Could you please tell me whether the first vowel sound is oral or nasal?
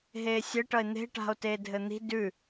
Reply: oral